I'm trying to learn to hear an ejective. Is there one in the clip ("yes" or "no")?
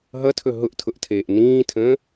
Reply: no